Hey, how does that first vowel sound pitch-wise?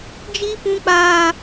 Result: high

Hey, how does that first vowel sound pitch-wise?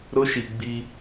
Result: high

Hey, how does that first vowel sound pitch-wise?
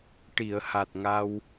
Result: low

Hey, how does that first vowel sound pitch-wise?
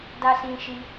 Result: high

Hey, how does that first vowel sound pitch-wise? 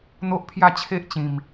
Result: high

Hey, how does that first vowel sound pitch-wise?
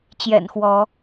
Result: low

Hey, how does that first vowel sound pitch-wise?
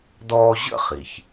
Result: high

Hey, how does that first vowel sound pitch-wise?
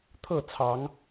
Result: falling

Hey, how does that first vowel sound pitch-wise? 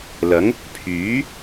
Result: rising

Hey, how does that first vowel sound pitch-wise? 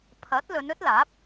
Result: rising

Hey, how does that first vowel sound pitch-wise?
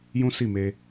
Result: high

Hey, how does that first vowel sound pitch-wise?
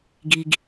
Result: low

